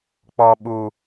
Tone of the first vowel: low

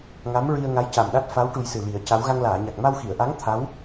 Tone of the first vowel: rising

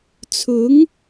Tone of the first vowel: rising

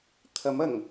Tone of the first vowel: rising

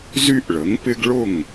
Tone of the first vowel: high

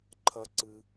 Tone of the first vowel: high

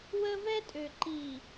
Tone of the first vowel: high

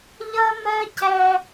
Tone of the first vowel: high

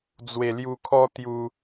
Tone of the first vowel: low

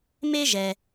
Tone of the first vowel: high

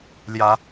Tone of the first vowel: rising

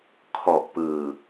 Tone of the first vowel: low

